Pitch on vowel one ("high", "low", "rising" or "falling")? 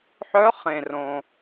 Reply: rising